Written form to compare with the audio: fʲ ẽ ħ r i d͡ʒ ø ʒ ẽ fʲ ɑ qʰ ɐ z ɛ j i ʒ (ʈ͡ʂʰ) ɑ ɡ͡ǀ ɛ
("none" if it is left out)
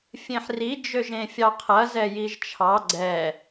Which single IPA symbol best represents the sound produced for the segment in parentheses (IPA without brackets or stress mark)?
t͡ʃʰ